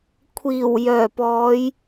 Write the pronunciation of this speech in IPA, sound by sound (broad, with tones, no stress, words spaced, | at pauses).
kʷʰiː˨˩w jœː˨˩pɔː˨˧j